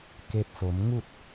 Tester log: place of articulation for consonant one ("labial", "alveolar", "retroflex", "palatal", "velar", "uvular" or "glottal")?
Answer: velar